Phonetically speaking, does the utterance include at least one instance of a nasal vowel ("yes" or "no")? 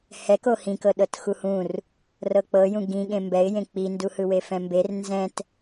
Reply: yes